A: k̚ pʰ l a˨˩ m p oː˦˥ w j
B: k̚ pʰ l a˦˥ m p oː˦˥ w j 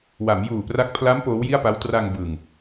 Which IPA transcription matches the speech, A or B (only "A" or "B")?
B